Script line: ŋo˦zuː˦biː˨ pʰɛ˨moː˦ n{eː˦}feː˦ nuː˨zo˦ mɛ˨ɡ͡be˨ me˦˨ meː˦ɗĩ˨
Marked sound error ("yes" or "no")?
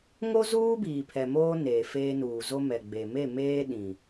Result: yes